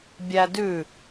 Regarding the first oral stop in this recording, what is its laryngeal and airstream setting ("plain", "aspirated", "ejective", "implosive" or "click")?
plain